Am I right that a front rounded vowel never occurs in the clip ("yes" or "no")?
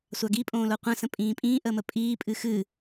yes